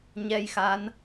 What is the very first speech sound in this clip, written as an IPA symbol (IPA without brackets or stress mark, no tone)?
ɲ